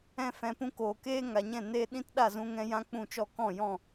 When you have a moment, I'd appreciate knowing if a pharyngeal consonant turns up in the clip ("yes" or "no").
no